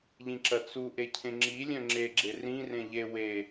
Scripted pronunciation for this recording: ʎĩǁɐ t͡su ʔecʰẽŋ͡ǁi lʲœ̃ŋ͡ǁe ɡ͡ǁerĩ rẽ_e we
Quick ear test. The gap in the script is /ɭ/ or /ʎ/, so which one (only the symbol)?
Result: ʎ